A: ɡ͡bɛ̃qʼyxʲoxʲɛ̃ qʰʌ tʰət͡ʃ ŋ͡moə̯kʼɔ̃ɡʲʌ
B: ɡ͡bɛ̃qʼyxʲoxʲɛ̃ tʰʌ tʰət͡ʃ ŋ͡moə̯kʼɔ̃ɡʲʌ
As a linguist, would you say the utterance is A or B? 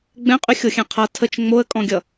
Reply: A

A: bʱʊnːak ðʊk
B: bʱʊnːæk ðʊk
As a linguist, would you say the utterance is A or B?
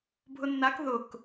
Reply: A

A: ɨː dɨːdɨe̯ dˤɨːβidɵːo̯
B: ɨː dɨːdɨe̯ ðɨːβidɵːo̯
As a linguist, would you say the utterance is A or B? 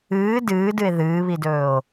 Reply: B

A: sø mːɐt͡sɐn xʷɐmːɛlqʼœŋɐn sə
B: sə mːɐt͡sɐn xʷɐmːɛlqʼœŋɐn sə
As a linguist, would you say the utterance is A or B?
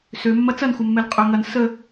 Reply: A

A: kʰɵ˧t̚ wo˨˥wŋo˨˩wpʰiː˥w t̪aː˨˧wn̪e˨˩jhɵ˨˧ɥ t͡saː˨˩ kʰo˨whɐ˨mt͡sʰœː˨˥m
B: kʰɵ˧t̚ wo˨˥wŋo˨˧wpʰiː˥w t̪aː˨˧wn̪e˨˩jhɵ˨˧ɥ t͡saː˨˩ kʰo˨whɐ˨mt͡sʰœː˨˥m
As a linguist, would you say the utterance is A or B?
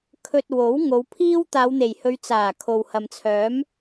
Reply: B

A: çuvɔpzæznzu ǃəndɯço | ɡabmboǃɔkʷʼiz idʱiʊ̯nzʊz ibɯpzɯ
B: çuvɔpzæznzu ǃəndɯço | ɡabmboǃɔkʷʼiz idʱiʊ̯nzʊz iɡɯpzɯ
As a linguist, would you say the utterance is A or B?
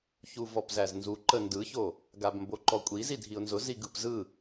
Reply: B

